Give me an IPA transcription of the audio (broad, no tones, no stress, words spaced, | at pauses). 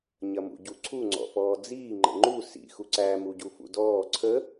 ɲɐmṵɟuǀʰu ŋ͡ǀɔ̰fɔːd͡ziː ŋ͡ǃə̰ŋ͡ǃu sḭ xuǀæ muɟufṵdɔː ǀʰə